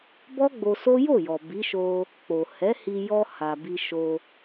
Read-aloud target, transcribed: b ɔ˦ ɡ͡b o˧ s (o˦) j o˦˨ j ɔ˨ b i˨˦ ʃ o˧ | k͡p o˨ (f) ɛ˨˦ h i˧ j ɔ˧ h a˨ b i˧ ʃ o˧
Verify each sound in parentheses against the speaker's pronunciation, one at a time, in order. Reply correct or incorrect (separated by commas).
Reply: correct, incorrect